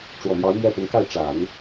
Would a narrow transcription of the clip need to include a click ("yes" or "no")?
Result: no